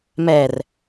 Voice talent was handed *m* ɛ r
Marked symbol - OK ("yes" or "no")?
yes